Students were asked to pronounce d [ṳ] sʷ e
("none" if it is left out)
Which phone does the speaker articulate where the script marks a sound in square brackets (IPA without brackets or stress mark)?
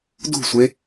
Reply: ṳ